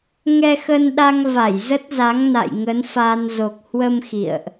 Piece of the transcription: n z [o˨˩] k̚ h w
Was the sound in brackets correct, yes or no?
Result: yes